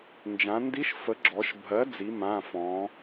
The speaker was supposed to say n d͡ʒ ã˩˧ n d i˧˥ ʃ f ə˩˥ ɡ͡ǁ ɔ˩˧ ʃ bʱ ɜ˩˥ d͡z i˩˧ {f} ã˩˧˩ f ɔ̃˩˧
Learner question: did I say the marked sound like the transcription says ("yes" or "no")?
no